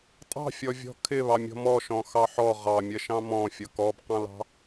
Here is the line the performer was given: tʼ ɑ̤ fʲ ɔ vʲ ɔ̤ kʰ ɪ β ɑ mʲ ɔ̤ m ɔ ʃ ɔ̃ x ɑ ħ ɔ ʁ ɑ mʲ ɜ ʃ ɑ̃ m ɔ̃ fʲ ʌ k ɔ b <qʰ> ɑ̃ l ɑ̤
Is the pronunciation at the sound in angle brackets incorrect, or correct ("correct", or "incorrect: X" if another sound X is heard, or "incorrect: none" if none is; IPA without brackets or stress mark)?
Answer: incorrect: q